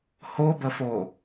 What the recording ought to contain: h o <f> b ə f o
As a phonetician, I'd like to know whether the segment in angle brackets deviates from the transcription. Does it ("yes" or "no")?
yes